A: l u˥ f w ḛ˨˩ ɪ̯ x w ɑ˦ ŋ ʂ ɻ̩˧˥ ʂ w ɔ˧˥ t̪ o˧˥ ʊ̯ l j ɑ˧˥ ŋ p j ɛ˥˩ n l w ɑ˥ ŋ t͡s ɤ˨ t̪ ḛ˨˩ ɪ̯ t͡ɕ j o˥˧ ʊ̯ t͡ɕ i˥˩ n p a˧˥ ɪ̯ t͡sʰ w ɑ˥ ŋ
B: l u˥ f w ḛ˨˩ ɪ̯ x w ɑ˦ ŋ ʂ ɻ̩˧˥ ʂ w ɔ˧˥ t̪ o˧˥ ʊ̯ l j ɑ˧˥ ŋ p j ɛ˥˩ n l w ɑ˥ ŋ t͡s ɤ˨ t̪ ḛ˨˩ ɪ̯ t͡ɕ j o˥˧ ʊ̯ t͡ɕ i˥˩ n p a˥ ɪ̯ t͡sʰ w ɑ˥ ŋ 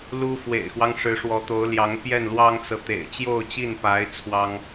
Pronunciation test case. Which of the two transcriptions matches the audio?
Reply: A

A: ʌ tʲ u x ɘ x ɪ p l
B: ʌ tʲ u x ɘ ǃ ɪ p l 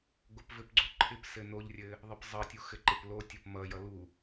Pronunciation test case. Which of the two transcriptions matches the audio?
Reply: B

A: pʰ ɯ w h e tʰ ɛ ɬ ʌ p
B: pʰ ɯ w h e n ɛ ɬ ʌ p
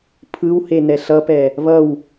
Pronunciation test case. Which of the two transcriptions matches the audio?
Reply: B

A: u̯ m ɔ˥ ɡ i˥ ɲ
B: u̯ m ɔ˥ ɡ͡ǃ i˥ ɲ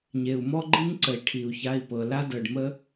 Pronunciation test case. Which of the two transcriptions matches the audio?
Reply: B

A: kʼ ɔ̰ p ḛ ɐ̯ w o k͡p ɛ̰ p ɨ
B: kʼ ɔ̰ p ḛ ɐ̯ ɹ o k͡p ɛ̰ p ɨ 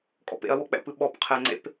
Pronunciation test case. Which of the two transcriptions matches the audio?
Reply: A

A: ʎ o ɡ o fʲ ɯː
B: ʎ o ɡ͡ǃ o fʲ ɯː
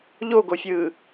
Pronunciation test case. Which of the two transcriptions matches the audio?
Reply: A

